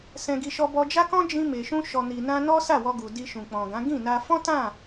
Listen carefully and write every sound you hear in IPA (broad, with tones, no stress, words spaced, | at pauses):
sɛ̃˧ɡi˧ʃɔ˧ bɔ˧d͡ʒa˦kɔ̃˦ d͡ʒĩ˧me˨ʃũ˧ ʃɔ˨ni˨nã˧ nɔ˦sa˦˨wɔ˧ɡu˨ di˧ʃũ˨k͡pɔ̃˨ɡã˨˦ ɡĩ˦˨na˧ fɔ̃˦tã˦˨